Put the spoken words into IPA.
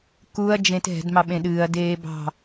k u ɐ̯ d͡ʒ ẽ t ɦ ɛ̤ d m ɑ ɓ ẽ ɗ ɨː ɐ̯ d eː b ɑ̤

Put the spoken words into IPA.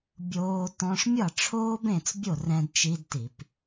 bʲ oː˦˥ t ɔ̃˦˥ ʂ mʲ ʌ˥˩ ʈ͡ʂʰ oː˦˥ b ẽ˥˩ t͡s bʲ o˥˩ r ɛ̃˦˥ d t͡ʃ i˦˥ d t i˧˩˧ p

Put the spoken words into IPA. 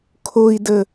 kʰ o i̯ d ə

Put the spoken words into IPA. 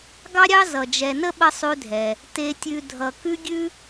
ɡ ɑ˥ ɾʲ ɑ˥ z ʌ˩ d͡ʒ ɛ˨ n ə˥ ɓ ə˥ sˤ ʉ˦ dʱ ɛ˩ | t e˨ tʲ ʉ˨ dʱ ʌ˩ k ʉ˥ ɡʲ ʉ˥

